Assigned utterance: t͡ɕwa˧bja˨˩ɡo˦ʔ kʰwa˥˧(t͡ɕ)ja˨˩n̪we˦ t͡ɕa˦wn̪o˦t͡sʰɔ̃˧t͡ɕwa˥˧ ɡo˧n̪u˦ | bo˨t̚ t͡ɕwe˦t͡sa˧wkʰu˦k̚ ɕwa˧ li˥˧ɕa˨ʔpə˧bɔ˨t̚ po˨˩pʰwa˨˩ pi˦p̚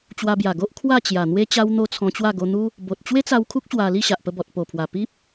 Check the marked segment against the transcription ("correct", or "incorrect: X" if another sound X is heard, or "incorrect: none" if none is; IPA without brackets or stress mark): correct